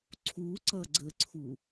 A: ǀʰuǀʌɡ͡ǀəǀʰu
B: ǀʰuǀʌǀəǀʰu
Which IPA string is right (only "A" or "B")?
A